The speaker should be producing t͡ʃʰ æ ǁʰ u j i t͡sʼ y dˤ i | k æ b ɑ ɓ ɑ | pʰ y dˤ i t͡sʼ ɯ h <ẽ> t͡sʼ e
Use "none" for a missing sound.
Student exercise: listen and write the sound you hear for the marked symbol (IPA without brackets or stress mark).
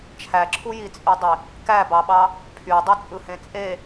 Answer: ẽ